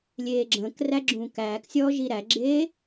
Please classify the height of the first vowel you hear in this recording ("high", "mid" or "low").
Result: mid